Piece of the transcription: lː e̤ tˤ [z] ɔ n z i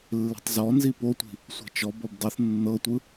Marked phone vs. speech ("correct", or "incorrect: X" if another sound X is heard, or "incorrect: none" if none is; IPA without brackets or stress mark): correct